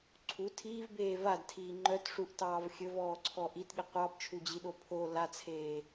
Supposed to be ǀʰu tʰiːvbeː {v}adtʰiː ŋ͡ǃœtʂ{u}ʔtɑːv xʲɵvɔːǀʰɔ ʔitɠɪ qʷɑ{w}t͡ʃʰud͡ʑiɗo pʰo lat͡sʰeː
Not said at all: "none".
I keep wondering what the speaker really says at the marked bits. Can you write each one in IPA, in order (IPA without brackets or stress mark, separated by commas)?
v, u, b